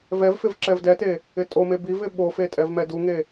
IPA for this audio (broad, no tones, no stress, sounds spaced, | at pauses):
v ɛ v f ɪ v ǁ ɛ v d ɛ t e | ɪ tʼ o m e b i v ɪ ɓ o f e tʼ ɛ v m ɛ d u ŋ e